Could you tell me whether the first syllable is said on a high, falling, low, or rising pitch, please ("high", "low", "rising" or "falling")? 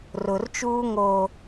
low